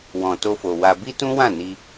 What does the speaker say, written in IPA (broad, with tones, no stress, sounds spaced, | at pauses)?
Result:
w ɔ̃˨ t o˧ f o˨ w a˧ b i˦ t ũ˦ w ã˦˨ n i˧